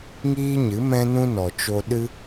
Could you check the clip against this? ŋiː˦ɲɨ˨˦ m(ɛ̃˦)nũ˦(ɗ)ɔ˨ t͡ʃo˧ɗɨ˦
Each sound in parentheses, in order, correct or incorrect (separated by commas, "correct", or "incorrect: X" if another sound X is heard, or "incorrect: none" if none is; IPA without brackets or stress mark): correct, incorrect: n